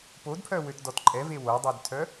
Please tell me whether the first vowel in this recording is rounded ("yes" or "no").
yes